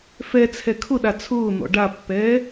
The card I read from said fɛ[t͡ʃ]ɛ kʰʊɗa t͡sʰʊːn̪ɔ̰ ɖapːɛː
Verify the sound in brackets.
incorrect: t͡sʰ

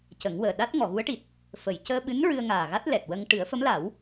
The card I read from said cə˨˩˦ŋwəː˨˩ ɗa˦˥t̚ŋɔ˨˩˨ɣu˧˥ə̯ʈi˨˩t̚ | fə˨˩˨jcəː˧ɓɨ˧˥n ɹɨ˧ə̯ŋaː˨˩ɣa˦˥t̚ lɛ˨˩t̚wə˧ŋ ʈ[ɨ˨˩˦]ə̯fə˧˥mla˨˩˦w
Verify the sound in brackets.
correct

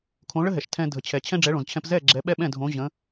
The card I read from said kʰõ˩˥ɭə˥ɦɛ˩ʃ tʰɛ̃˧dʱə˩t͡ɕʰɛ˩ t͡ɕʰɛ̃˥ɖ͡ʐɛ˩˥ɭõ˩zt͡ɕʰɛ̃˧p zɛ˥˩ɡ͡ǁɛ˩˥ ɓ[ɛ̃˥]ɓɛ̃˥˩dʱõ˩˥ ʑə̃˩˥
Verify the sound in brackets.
incorrect: ɛ˥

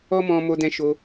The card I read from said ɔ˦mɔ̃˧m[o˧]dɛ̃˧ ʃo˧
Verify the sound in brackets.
correct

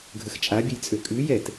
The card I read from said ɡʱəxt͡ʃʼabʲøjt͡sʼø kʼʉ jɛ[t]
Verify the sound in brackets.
correct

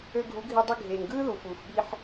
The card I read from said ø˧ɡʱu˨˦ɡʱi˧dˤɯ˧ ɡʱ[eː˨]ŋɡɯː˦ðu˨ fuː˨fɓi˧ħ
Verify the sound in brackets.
correct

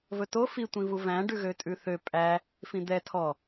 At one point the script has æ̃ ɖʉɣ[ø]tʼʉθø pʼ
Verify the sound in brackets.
correct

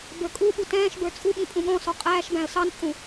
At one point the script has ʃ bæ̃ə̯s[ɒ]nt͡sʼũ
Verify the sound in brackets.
incorrect: ɑ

